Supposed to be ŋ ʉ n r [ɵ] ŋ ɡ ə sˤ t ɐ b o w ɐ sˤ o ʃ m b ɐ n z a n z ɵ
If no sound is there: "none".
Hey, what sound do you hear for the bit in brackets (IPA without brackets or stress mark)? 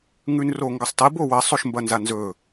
o